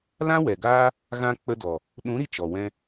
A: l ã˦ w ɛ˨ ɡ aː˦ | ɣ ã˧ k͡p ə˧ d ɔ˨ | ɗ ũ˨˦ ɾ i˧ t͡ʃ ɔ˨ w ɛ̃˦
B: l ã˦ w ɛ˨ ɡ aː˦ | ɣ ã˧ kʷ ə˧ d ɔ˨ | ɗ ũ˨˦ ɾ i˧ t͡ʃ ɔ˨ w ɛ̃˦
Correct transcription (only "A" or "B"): A